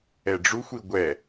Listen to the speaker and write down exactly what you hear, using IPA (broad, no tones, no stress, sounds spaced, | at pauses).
ɛ ɖ͡ʐ u xʷ i ɡʷ ɛ